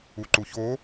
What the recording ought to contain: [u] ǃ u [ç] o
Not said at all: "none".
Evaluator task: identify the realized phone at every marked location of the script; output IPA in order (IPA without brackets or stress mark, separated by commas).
u, ç